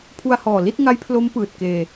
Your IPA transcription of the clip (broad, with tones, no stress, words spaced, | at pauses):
pʰu˧a̯hɔː˨˩ li˥˩t̚ŋa˦˥jpʰlo˦˥m pɯː˨˩t̚keː˧